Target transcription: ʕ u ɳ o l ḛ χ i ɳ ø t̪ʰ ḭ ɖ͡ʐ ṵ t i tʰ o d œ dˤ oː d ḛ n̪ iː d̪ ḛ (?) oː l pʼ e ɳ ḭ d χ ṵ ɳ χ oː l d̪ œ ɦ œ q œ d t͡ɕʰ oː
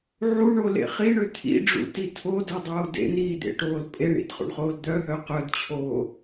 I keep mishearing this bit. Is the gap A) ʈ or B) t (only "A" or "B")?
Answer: A